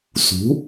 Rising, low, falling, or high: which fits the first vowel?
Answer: rising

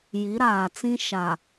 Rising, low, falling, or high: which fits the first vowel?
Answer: rising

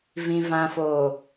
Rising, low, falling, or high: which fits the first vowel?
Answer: low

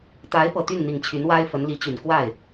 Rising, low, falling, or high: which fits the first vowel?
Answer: rising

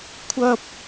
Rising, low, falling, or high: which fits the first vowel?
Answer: high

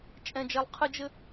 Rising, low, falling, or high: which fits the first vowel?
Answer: high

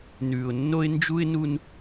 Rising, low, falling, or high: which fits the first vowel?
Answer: low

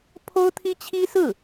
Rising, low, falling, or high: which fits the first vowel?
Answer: high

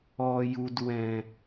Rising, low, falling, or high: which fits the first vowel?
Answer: low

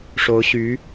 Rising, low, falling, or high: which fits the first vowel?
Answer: rising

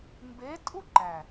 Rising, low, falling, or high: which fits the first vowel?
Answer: rising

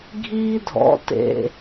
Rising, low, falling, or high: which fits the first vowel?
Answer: high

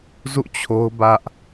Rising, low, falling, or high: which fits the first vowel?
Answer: falling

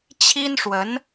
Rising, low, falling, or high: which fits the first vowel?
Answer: high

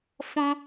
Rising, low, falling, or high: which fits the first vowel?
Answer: high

